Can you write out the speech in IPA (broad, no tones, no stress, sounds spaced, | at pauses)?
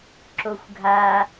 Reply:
ǁ o xʷ ɡʱ a